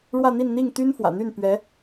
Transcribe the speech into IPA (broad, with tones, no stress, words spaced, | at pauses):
ɻwä˥˧n̪i˥˧nn̪i˥˩ŋ t̪y˥n fwä̰˨˩ n̪y˥˩n pɥɛ˧˥